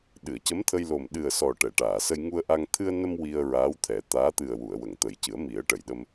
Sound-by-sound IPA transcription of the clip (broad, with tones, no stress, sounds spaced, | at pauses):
ɗ ɨ˨˩˨ ə̯ c ə˧˥ m t̪ʰ ə˧ j l o˨˩ m ɗ ɨ˨˩ ə̯ s ɔ˨˩ ʈ ɛ˨˩˨ ʈ aː˨˩˨ s ə˧ j ŋ u˧ ə̯ ʔ a˧ ŋ t̪ʰ ɨ˧ ə̯ n ə˧ m w i˧ ə̯ ɹ aː˧˥ w t̪ʰ ɛ˨˩˦ t̪ aː˧˥ t̪ ɨ˨˩ ə̯ w u˨˩˨ ə̯ w ə˨˩˨ ŋ t̪ ə˨˩˦ j c ɨ˨˩˦ ə̯ m i˨˩˦ ə̯ ʈ ə˨˩˨ j ɗ ə˧ m